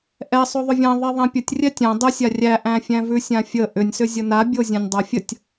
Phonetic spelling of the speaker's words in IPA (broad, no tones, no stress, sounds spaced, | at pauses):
ʔ ɛ sˤ o ðˤ ʏ vʲ ã ðˤ ɛ ðˤ æ̃ pʲ ə tʲ rʲ ɛ tʲ ã dˤ ə sʲ a rʲ æ ʔ æ̃ fʲ æ̃ v ʉ sʲ ã fʲ ə ʔ ʏ nʲ s ʏ zʲ ə n a bʲ o zʲ æ̃ nʲ dˤ æ fʲ ə tʲ